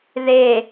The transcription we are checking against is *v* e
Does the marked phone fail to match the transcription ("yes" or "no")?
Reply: yes